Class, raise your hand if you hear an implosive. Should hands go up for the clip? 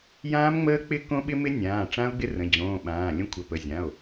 yes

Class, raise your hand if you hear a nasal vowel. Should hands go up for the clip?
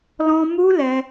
yes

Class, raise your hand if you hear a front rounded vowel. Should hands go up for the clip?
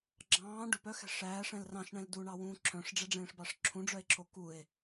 yes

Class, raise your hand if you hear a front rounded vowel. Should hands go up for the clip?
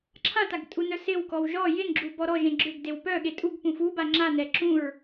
yes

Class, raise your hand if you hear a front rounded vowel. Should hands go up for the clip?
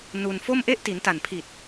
no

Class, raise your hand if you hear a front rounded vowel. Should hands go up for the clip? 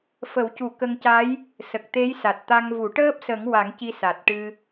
no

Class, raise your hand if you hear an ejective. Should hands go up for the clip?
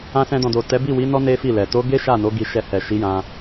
no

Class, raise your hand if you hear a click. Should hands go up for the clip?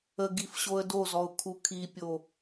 no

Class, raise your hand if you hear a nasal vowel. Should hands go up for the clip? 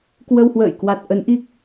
no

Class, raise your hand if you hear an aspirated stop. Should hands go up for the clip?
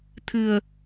yes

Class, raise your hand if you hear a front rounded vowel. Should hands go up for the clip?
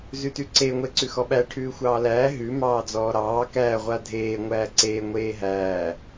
no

